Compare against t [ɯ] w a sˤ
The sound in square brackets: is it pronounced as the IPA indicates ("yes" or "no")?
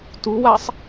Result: no